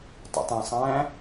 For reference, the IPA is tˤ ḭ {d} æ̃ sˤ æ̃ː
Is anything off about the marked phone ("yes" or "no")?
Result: yes